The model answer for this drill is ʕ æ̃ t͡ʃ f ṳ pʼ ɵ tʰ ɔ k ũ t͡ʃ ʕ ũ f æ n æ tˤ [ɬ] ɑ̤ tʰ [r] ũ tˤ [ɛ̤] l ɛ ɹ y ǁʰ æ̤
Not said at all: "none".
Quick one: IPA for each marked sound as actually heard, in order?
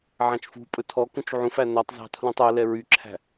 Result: z, l, ɛ

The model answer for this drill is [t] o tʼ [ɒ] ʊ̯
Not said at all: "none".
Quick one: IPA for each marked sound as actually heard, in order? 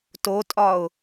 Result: t, ɒ

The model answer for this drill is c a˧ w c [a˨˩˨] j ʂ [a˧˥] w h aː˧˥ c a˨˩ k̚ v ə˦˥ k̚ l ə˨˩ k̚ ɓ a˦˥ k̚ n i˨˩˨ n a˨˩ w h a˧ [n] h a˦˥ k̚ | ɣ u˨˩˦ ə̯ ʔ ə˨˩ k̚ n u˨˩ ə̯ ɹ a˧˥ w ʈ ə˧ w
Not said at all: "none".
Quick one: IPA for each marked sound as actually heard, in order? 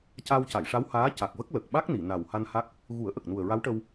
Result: a˨˩˨, a˧˥, n

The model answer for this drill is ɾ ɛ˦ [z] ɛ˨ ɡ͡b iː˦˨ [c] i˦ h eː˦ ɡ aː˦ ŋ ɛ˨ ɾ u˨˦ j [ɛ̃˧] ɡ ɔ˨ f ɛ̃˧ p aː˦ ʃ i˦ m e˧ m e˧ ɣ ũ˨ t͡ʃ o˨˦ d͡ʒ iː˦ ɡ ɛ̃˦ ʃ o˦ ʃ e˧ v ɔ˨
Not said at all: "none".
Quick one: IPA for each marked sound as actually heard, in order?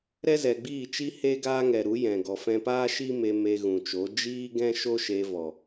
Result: z, t͡ʃ, ɛ̃˨

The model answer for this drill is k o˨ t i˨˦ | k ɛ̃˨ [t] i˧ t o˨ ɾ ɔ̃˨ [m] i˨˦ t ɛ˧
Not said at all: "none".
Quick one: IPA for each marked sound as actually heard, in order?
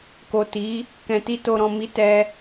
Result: t, m

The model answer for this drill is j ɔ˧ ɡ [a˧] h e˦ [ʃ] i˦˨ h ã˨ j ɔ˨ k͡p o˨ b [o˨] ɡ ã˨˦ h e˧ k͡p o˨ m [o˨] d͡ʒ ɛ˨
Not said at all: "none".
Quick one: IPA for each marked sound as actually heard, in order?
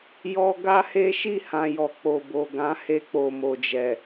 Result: a˦, ʃ, o˨, o˨

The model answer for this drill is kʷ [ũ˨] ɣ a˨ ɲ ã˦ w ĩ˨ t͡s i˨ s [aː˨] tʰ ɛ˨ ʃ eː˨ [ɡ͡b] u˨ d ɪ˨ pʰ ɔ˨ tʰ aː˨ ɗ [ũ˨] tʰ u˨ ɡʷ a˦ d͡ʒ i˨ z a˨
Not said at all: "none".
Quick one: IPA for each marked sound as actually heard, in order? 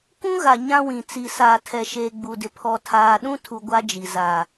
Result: ũ˦, aː˨, ɡ͡b, ũ˦

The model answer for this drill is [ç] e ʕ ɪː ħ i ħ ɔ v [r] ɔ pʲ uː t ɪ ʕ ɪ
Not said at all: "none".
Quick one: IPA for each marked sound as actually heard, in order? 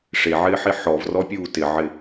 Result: ʂ, r

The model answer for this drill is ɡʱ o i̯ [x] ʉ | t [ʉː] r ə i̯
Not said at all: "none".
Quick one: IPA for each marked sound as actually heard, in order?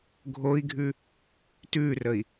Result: ɡʱ, ʉː

